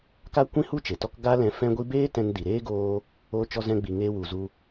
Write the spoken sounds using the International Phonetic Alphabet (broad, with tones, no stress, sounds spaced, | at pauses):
k a˦ kʷ ĩ˦ h u˦ t͡ʃ e˨ t ɔ˦ k ɡ a˦ l ɛ̃˧ f ɛ̃˦ ɡʷ i˦ b eː˦ t ɛ̃˧ n d i˨ ɾ eː˦ ɡ oː˧ | oː˧ t͡ʃ ɔ˧ z ɛ̃˧ ɡ͡b i˨ ŋ eː˧ w u˨ z u˧